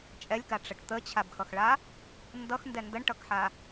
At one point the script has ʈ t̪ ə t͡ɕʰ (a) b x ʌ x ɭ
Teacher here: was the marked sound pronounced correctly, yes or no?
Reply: yes